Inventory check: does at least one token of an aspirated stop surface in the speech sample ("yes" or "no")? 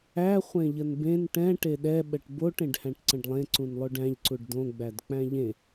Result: no